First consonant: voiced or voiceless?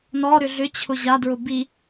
voiced